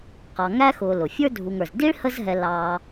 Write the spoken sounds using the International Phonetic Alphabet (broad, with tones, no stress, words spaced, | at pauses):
qɑ˨ŋæ˥xʊː˨ lʊ˩fʲə˞˥dʱu˨ŋə˞˩z di˥ɭhə˦zɦɛ˨ lɑː˨